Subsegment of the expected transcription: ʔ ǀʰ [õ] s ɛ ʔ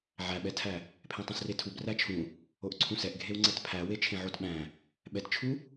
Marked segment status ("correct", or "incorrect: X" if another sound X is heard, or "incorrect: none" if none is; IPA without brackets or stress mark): incorrect: ũ